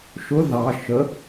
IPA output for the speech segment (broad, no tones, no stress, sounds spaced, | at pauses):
ʃ ʊ ð ɑ ʃ ə